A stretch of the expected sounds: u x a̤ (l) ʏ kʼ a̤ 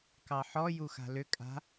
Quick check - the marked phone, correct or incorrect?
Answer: correct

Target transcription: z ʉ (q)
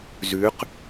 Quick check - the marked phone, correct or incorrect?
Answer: correct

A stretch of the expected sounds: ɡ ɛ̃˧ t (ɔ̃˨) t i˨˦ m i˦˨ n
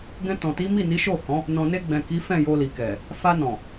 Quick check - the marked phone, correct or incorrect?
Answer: correct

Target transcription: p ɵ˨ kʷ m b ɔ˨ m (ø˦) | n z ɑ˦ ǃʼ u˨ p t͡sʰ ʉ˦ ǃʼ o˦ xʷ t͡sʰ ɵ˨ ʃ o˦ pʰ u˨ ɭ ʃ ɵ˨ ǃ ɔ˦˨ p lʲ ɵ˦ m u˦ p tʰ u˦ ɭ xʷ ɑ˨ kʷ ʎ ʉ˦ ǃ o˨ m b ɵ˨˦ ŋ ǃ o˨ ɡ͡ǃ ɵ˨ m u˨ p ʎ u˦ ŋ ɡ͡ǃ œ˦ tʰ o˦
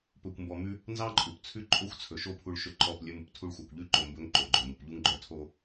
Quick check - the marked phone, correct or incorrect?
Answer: incorrect: ʉ˦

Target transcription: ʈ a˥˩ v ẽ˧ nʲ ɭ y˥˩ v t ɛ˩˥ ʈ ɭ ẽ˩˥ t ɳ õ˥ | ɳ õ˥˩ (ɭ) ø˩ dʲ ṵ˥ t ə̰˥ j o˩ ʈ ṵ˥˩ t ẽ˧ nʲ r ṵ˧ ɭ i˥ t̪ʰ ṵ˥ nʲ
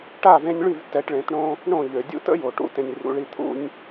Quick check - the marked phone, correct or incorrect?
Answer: incorrect: ʎ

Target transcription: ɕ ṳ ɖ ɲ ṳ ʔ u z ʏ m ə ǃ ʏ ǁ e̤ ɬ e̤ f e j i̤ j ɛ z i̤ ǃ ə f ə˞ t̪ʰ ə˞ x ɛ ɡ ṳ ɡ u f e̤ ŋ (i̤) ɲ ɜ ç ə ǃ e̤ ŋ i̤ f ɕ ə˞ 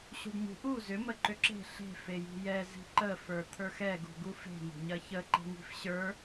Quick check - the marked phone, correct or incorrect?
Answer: incorrect: e̤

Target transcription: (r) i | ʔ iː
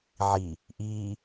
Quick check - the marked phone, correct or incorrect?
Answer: incorrect: ʕ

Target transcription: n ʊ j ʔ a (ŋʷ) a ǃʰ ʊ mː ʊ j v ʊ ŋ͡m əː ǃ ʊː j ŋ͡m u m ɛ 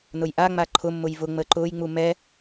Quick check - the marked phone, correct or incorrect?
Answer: incorrect: ŋ͡m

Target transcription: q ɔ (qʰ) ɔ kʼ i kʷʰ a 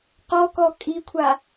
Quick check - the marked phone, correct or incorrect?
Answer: incorrect: k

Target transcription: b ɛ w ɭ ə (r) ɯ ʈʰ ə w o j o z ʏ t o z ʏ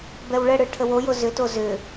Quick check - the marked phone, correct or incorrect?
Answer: incorrect: ɽ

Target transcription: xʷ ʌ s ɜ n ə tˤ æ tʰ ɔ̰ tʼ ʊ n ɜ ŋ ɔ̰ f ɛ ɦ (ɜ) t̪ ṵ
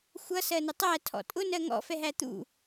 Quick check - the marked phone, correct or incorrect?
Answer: incorrect: æ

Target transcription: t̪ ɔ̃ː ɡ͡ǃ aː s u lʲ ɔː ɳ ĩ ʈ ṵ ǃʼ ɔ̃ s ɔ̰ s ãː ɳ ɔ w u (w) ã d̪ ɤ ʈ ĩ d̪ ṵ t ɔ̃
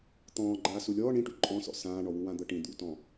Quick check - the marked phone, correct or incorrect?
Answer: correct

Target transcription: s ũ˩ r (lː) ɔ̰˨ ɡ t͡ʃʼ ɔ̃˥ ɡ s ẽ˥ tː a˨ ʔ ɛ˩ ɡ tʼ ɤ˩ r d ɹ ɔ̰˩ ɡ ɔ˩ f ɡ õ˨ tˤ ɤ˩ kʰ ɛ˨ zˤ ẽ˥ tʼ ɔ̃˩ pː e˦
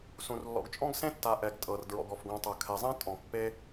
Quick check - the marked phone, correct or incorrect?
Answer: correct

